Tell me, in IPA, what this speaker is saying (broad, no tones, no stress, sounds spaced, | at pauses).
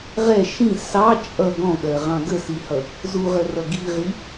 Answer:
ʁ ɛ ʃ ĩ s ɑ t͡ʃʼ ʌ ɡ ɔ̃ ɠ ɜ ʁ ɑ̃ ɡ ə s i h ʌ | z u ʁ ə r ʌ ɡ i ʁ i